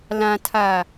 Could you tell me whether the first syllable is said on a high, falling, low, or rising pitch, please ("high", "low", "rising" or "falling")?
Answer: low